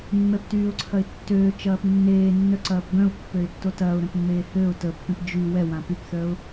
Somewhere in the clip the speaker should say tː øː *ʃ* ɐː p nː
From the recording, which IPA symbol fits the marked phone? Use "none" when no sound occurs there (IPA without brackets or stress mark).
t͡ʃ